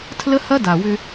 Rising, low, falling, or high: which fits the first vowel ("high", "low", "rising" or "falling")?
high